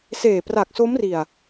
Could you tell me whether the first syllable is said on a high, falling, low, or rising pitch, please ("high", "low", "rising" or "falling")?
low